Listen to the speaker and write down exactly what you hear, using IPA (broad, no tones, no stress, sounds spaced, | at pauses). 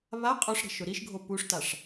β a qʼ ʊ ʂ ɾ e̤ ʃ ʊ ɾ i ʃ ɡʱ o p u ʂ t a ʂ